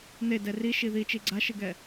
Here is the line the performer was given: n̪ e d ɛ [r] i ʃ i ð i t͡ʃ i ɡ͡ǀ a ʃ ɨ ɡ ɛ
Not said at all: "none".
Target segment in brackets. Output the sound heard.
r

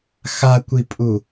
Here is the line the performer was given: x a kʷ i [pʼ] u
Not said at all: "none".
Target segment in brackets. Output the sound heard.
pʼ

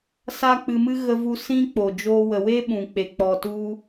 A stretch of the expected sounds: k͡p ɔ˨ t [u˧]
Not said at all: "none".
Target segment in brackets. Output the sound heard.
u˧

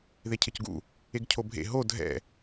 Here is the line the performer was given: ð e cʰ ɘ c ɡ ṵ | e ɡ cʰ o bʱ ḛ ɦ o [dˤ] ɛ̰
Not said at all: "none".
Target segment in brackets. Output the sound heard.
dʱ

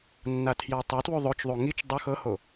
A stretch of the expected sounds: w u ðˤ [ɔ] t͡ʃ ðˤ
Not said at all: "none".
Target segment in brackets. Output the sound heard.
o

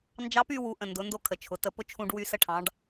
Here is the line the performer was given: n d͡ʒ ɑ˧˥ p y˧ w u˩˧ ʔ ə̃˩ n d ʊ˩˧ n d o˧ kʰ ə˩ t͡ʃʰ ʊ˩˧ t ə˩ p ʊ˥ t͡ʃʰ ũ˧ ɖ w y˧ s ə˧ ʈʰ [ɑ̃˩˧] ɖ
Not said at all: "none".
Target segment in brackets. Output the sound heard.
ɑ̃˩˧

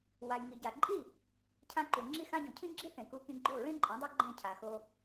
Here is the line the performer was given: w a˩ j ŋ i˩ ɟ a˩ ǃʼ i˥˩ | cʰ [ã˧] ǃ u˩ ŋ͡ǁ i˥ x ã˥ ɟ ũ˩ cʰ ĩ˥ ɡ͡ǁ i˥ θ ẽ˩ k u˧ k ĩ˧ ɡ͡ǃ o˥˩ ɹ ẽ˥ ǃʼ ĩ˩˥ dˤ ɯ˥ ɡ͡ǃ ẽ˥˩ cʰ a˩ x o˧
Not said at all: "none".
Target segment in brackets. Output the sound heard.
ã˧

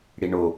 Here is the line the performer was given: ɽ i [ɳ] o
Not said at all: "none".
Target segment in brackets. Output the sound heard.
ɳ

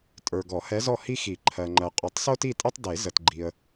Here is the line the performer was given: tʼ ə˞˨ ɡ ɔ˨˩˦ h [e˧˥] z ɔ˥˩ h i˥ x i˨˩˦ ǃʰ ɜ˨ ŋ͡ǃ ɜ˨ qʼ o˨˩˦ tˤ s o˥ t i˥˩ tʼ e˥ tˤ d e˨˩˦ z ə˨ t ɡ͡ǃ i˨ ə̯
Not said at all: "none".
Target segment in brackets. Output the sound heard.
ɛ˧˥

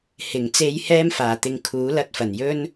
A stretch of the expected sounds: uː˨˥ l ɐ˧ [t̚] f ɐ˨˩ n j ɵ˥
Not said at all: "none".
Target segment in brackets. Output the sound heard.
t̚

